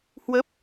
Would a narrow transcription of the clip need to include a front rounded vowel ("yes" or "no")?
no